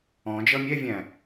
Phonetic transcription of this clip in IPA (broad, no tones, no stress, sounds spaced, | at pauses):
ɔ̃ d͡ʒ ʌ mʲ ɛ vʲ æ̃